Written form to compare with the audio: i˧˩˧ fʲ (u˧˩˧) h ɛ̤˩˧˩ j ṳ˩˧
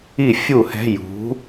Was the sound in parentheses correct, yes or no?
yes